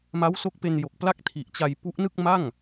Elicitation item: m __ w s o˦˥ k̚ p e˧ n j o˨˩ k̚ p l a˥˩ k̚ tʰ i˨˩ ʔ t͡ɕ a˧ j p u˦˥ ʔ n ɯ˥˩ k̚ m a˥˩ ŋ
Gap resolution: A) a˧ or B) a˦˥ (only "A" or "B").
B